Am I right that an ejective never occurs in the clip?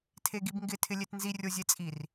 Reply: no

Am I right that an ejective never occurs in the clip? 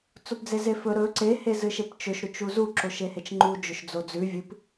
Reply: yes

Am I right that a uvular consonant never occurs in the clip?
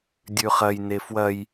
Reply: no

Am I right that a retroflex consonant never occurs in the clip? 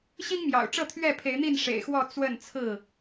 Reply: no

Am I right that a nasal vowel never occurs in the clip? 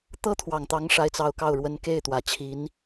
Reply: yes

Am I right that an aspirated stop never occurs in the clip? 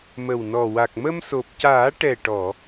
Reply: yes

